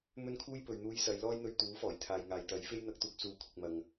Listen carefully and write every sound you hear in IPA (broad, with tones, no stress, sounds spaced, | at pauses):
m ɵ˥ n kʰ uː˥ j p ɵ˨˧ ɥ n̪ uː˧ j s ɐ˨˧ j l ɔː˥ j n̪ ɵ˧ ɥ t̪ uː˨˥ f ɔː˨˩ j t̪ʰ aː˨ j ŋ aː˨ j t̪ ɐ˨˥ j f e˥ j n̪ ɐ˧ k̚ t̪ uː˨ k̚ s uː˨˥ kʷʰ ɪ˨ k̚ m ɐ˨ ŋ